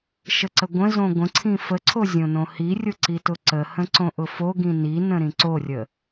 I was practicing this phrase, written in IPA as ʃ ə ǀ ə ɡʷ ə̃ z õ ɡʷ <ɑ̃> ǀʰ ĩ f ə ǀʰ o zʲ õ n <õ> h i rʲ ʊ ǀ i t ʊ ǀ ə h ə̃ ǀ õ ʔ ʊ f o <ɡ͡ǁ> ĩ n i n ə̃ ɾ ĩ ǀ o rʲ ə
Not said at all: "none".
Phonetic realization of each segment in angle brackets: ə̃, õ, ɡ

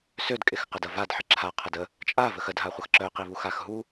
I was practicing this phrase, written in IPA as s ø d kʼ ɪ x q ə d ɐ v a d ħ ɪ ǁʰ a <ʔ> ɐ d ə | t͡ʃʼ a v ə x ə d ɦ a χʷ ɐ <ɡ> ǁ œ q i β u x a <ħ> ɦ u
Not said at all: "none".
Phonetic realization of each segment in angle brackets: qʰ, x, x

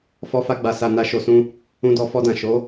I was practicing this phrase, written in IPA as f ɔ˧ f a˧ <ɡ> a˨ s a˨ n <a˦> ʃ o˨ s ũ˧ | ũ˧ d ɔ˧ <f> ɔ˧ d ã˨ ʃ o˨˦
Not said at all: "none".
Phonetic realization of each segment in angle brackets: ɡ͡b, a˨, f

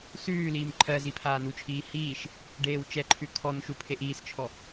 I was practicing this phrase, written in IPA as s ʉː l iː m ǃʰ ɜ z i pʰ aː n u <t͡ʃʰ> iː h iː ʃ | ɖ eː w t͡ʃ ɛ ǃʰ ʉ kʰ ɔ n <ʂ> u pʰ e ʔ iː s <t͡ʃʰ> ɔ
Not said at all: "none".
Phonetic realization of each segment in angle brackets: t͡ʃʰ, ʃ, t͡ʃʰ

